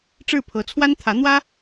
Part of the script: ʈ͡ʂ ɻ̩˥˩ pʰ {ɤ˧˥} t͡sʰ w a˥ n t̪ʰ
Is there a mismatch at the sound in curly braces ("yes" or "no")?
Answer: no